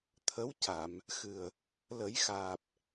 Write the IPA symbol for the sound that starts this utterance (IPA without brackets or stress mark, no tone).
t̪ʰ